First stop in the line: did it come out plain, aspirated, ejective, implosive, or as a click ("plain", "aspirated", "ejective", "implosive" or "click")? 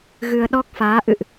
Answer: implosive